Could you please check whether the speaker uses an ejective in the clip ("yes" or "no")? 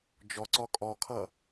yes